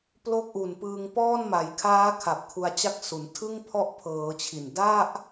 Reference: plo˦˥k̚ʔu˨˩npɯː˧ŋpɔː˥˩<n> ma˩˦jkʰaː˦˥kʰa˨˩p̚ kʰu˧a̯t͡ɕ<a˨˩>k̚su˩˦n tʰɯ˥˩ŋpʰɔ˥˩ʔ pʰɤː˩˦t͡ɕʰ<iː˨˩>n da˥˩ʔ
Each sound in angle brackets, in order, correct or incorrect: correct, incorrect: a˦˥, incorrect: i˨˩

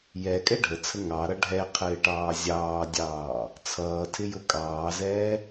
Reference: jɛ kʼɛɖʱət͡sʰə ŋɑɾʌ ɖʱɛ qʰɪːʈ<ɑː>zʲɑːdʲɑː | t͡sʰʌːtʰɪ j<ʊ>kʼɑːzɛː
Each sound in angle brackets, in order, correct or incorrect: correct, correct

